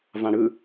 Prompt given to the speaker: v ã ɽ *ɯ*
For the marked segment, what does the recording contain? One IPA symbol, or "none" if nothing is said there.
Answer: ɯ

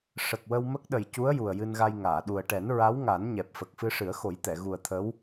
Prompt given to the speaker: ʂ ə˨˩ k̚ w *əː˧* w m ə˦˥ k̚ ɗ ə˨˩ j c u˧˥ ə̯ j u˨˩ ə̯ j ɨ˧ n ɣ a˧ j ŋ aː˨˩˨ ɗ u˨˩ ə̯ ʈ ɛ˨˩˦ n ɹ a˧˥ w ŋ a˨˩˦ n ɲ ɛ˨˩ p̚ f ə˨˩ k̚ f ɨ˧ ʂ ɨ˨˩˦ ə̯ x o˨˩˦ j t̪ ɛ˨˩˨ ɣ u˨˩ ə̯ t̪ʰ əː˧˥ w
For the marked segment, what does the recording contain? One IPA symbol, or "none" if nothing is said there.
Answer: ə˧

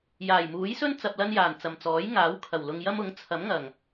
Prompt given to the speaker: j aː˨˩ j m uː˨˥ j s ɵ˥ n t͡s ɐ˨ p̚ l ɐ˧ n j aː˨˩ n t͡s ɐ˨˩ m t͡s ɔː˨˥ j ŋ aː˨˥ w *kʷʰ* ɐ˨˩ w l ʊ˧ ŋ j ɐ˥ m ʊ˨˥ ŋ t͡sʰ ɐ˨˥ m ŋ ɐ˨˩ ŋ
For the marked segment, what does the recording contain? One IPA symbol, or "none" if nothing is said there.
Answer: kʰ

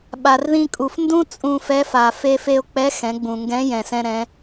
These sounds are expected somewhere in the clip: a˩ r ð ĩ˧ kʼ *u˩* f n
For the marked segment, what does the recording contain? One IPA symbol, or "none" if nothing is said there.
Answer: u˩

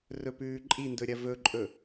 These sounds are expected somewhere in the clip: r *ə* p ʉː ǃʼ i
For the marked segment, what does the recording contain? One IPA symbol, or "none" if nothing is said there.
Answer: ɵ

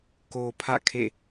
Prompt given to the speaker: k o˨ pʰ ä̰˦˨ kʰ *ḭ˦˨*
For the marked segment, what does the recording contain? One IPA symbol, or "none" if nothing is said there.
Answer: ḛ˦˨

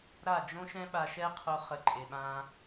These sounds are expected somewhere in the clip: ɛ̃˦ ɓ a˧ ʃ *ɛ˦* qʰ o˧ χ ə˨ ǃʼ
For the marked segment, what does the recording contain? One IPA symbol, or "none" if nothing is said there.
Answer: ɛ˦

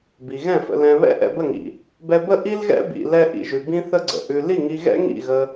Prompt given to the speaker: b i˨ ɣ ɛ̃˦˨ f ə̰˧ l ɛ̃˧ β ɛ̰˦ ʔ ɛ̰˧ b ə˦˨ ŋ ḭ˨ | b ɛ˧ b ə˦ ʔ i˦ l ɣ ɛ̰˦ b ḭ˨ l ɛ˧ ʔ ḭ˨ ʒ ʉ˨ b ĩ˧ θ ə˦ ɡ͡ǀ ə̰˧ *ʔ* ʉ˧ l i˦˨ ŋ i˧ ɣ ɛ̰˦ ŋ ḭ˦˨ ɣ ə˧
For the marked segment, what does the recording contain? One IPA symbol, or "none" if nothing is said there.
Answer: ʔ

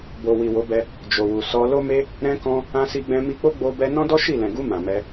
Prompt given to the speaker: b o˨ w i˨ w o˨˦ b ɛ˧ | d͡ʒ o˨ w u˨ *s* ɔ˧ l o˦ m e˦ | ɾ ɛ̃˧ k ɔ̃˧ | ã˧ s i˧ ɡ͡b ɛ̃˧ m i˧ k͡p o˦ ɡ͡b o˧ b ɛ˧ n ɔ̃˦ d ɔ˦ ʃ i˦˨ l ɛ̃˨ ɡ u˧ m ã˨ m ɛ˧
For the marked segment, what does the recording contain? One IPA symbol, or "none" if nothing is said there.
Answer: s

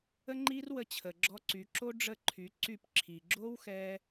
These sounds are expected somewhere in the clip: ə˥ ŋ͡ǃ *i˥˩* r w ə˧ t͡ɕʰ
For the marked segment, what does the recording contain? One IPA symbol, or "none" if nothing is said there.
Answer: i˥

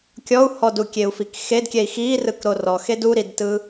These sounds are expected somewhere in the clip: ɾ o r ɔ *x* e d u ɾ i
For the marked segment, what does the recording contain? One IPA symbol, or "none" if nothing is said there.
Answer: x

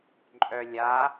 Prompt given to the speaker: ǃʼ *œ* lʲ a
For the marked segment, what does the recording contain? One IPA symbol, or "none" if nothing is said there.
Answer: œ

